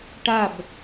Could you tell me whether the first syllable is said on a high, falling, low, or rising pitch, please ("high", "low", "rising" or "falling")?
falling